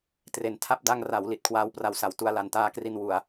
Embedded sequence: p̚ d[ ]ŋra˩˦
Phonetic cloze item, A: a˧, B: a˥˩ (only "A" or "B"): A